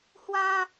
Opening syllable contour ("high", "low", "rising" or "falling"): high